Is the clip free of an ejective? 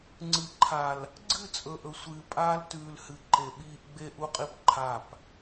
no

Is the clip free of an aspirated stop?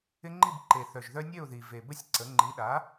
yes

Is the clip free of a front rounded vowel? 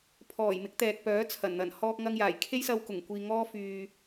no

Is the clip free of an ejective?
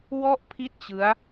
yes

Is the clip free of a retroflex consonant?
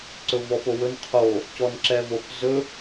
yes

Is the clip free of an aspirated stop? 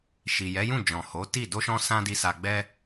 yes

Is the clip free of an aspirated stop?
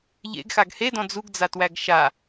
yes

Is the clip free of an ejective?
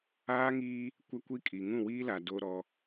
no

